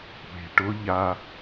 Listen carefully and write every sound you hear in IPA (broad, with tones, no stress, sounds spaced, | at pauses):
kʷ e̤˨ ʈ ʊ˦ ʎ a˧